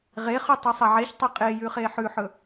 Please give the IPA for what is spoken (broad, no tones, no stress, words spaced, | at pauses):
ʁeχʉ tˤɨsˤɐʕeçtˤɐ qʼejʉ χeħʉħɵ